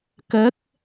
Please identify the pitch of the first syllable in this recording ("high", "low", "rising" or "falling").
rising